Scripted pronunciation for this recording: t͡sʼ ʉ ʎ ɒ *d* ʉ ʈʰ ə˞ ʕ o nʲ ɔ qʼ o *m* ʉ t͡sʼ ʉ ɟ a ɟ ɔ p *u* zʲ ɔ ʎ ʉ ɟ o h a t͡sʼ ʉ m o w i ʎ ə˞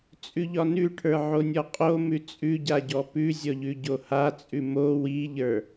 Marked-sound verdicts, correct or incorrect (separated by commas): incorrect, correct, incorrect